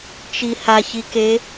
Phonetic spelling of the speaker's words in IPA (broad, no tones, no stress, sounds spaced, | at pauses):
t͡ʃ i h a ç i k e